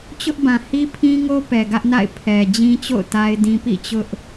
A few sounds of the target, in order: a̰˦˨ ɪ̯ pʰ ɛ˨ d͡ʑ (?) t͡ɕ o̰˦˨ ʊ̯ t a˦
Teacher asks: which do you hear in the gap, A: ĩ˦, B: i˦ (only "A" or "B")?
A